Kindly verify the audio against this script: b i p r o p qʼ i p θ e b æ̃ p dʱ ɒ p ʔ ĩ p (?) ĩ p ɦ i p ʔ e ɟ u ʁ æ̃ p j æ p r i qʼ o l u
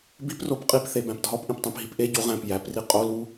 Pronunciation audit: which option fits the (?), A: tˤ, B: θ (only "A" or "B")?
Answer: A